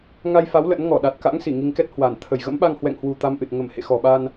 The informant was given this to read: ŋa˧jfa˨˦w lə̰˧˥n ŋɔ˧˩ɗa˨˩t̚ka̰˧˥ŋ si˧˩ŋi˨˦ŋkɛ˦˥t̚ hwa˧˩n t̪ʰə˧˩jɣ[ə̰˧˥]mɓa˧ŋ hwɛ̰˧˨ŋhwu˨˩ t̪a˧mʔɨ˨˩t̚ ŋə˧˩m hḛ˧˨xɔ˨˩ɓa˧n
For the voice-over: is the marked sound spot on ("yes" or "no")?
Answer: yes